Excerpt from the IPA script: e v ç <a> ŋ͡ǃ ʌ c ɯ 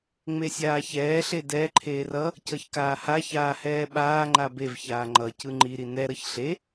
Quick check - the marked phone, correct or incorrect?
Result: incorrect